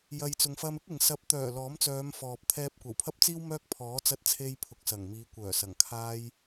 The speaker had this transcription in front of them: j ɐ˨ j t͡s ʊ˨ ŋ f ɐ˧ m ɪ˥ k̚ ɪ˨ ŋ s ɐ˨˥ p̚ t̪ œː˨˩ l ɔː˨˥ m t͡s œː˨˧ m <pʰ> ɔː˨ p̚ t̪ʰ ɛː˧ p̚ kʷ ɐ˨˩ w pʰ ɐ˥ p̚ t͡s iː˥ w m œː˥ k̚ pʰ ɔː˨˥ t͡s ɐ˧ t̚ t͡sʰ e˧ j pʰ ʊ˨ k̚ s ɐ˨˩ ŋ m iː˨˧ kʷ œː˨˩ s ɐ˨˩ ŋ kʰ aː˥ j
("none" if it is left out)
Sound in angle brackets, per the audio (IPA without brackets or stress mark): f